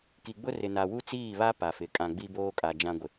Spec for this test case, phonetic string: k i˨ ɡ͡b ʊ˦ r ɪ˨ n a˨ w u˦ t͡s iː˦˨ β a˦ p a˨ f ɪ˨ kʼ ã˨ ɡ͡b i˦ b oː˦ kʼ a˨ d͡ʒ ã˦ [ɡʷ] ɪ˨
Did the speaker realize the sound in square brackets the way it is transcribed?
yes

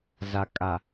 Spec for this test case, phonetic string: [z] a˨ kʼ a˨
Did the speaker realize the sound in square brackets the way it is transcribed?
yes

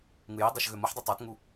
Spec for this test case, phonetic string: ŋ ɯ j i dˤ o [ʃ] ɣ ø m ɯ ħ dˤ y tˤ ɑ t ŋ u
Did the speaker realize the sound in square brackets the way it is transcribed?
yes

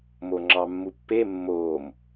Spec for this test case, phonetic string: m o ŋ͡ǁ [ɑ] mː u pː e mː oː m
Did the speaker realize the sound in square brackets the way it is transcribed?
yes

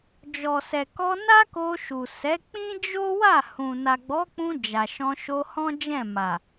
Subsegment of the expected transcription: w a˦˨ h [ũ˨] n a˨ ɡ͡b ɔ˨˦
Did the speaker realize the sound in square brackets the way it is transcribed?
yes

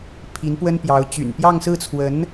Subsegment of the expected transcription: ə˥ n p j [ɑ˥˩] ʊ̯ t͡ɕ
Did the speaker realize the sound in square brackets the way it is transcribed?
no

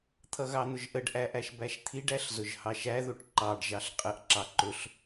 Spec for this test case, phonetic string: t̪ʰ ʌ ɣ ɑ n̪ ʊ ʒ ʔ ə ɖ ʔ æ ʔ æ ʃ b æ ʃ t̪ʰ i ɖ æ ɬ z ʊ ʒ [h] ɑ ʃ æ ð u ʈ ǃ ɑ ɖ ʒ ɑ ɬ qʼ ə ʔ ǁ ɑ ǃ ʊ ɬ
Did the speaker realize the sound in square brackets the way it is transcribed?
yes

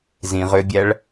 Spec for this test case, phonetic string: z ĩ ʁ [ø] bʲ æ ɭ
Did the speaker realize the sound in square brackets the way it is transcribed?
yes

